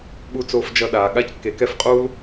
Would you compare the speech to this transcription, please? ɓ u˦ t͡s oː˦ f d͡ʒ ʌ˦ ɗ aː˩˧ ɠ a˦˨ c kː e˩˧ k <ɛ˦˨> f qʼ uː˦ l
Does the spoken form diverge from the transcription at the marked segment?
no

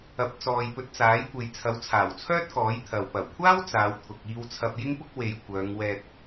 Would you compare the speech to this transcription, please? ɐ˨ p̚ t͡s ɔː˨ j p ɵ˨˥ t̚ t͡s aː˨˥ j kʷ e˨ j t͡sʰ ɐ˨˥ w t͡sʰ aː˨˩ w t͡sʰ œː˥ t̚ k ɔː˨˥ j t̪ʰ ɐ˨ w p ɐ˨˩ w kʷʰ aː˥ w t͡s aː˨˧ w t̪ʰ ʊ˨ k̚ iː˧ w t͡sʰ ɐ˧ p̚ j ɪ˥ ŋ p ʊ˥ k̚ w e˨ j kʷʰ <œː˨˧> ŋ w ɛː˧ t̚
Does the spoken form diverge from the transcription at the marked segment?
no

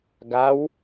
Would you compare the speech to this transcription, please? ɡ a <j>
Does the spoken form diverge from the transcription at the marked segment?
yes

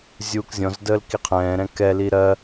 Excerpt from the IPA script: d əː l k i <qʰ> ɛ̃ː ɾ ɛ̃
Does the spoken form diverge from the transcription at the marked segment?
no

